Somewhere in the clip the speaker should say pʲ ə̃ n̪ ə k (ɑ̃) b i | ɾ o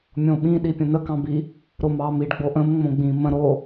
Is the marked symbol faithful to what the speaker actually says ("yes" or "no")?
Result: yes